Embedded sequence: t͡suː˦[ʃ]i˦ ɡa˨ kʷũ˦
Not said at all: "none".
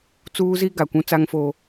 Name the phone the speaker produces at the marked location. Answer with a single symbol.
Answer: z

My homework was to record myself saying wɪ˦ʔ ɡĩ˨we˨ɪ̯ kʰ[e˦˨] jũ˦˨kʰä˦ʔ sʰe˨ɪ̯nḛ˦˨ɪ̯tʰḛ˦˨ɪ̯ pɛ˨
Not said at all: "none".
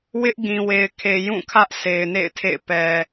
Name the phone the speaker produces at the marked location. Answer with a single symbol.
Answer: e˨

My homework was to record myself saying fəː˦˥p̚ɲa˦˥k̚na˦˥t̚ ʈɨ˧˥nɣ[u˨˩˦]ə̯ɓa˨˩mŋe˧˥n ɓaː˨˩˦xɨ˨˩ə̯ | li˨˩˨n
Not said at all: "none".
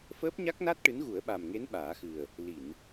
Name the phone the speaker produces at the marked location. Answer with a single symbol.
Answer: u˨˩˦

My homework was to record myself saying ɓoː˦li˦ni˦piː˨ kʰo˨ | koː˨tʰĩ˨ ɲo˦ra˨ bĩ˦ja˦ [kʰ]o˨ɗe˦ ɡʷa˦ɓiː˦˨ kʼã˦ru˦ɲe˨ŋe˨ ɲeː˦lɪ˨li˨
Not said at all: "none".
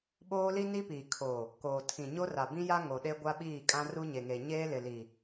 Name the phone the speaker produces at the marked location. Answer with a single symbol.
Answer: ŋ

